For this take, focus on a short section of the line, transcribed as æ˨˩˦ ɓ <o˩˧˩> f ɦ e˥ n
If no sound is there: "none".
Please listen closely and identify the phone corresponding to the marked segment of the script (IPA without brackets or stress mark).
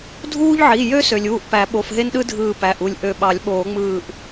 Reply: o˩˧˩